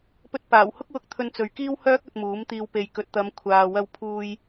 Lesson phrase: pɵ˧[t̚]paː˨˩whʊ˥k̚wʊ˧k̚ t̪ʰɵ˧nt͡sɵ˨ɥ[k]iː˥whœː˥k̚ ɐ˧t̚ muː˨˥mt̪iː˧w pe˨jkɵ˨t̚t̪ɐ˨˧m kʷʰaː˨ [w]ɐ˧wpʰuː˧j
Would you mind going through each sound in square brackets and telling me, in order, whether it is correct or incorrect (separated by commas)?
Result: correct, correct, correct